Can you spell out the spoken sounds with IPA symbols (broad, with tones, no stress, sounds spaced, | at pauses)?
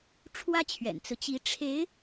ʈ͡ʂʰ w ä˥ t͡ɕʰ ɥ ɛ̰˨˩ n t͡s ɹ̩˦ t͡ɕ i˧˥ ʈ͡ʂʰ e˧˥ ɪ̯